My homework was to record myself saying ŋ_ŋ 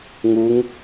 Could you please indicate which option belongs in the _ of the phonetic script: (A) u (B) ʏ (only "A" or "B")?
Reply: A